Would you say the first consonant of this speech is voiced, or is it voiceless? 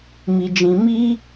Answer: voiced